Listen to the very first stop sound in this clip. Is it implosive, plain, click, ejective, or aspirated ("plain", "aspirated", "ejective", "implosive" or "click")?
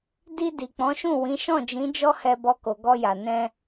plain